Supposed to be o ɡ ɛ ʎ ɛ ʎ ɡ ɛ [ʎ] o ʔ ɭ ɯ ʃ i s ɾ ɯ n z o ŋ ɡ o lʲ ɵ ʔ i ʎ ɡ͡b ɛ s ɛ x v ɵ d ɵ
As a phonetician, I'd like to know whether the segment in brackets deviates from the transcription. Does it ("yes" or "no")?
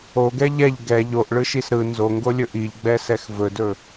no